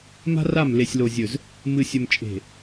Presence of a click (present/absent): absent